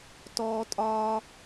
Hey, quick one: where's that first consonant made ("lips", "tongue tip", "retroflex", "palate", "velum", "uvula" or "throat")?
tongue tip